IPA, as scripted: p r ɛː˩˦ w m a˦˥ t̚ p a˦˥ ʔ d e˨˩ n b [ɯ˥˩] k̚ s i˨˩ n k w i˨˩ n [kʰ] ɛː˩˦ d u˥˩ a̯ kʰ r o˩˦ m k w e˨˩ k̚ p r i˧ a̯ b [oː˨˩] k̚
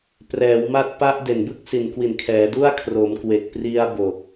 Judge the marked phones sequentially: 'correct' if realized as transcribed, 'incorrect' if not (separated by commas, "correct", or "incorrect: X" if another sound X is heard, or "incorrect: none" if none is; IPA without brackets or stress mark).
correct, correct, incorrect: o˨˩